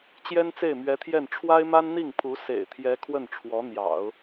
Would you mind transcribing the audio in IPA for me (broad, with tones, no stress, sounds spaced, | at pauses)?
t͡ɕ j ɛ˥ n t͡s e˥˩ ɪ̯ m ɥ ɛ˧˥ t̪ʰ j ɛ˥˩ n ʈ͡ʂʰ w a˥ ɪ̯ m a˥ n n̪ i˥˩ ŋ pʰ u˧˥ s ḛ˨˩ ɪ̯ t̪ʰ j ɛ˧˥ kʰ w ə˥˩ n ʈ͡ʂʰ w ɔ˧˥ n̪ j ɑ̰˨˩˦ ʊ̯